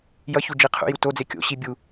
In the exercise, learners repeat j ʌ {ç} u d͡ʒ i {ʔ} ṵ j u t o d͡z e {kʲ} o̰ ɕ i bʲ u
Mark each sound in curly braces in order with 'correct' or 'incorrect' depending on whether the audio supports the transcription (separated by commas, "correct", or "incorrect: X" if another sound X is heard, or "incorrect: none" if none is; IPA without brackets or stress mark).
correct, incorrect: qʰ, correct